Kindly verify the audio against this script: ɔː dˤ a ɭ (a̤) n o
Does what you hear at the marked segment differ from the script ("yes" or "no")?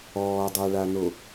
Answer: yes